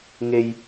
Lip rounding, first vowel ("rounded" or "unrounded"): unrounded